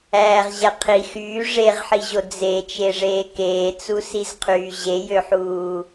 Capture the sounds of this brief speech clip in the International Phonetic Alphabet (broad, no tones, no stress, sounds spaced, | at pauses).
æː ʁ ʑ æ qʰ i x yː ʐ e ʁ ħ i ʑ o d͡z e t͡ʃ e ʐ eː k eː t͡s u s i z qʰ yː ʑ e j ø ħ uː